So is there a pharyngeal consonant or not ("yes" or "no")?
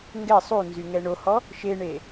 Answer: no